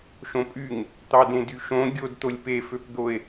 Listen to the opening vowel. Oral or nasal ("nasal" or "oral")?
nasal